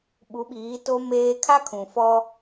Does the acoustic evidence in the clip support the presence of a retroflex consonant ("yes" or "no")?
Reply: no